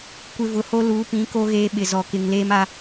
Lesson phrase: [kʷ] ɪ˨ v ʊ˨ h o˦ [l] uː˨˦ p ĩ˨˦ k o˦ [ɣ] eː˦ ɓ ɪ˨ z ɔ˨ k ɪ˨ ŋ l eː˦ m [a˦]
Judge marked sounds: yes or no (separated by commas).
yes, yes, yes, yes